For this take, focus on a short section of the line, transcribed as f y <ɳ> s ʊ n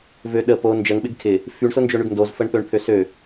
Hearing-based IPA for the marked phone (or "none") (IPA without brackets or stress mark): ɳ